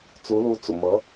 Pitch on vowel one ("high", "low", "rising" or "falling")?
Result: rising